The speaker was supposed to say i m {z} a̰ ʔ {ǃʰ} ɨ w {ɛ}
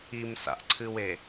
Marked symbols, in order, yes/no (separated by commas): no, no, no